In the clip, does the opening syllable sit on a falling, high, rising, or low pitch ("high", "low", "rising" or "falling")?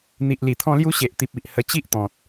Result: low